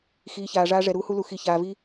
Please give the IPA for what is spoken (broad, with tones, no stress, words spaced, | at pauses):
xiː˨ çaː˨ʐaː˦ ʐɛ˨ɾuː˦hu˦lu˨ xi˨çaː˨vi˦